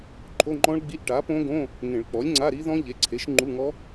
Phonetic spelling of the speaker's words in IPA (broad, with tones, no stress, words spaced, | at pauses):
ǃʰo˧˥˧ŋ͡ǃɔ̃˦˥ɭɡ͡bi˧˥˧ʔ ʈa˩˥põ˦˥ɡõ˧˥˧ | ŋẽ˨˩˦ɭ k͡pɔ˩˥lʲŋ͡ǀa˧˥˧ɾi˦˥ðɔ̃˦˥ ʎe˩˥ǀʰe˩˥ʃ ŋ͡ǃu˧˥˧ŋɔ˦˥